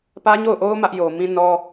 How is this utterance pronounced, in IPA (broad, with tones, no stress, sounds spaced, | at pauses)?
p ä˦ ɲ o˦˨ ʊ̯ ʔ o˦ ʊ̯ m ä˦ ʔ j o˨ m ĩ˦ n ɔ˦